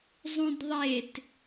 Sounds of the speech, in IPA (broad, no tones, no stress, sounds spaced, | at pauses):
zˤ ũ d ðˤ e t